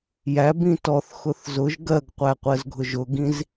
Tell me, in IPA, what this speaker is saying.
j æ b ĩ t ɔ θ x ʊ θ z ʊ ʒ ɡ ɜ ɡ qʷ æ qʷ ɜ z ɡʱ ʊ ʒ ʊ ɡ ĩ z

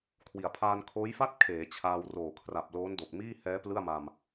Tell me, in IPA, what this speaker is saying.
kʰ w i˩˦ a̯ pʰ aː˧ n kʰ oː˦˥ j f a˥˩ t̚ kʰ eː˩˦ t͡ɕʰ aː˧ w r oː˨˩ kʰ r a˨˩ p̚ l oː˦˥ n d o˨˩ k̚ m iː˥˩ h ɛː˦˥ p l ɯ˥˩ a̯ m a˧ m

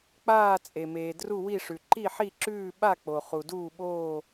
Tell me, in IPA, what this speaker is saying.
k͡p aː˥˧ t͡sʼ e˨ m eː˨ d r u˥˧ w i˥˧ ʂ ʉ˨ ǃ i˥˧ ħ i˥˧ ǁ ʉː˥˧ ɓ a˥˧ k͡p o˨ χ u˨ d uː˥˧ ɓ oː˥˧

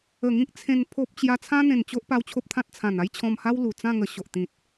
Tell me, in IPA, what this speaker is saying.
ə˨˩ ŋ ĩ˦ k̚ t͡sʰ ẽ˧ n pʰ o˦ p̚ t͡ɕ j a˦ t͡sʰ ã˦ n̪ ẽ˨˩ n t͡ɕ o˦ ʔ p a˧ w t͡ɕʰ o˦ p̚ t̪ʰ ã˦ t̚ t͡sʰ ã˨˩ n a˦ j t͡ɕʰ ɔ̃˧ m h a˦ w l u˨˩ t͡s ã˥˧ ŋ ə˧ ɕ o˨ ʔ t̪ ĩ˨ t̚

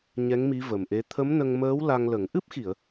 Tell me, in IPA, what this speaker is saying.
ɲ ɛ˧˥ ŋ m i˧˥ v ə˨˩ m ʔ e˧˥ t̪ʰ ə˧˥ m n ə˧ ŋ m əː˧˥ w l a˧ ŋ l ə˨˩˦ ŋ ʔ ɨ˦˥ p̚ x i˨˩˨ ə̯

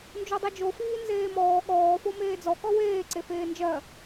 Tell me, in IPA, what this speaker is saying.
n d͡ʒ o dˤ i d͡ʒ o f iː n z eː m ɔː ɠ ɔː f o m eː d͡z ɔ k ɔ w eː ǀ e f eː n d͡ʒ ɜ

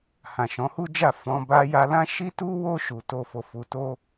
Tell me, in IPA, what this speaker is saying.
h ã˨ ʃ ɔ̃˨˦ h u˦ d͡ʒ a˦˨ f ɔ̃˧ b a˧ j a˧ l ã˦ ʃ i˦ t u˦ w o˦ ʃ u˧ t o˦ f o˧ f u˧ t o˦

